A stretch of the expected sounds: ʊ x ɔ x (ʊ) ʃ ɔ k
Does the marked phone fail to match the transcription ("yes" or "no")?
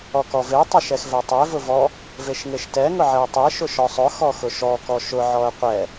no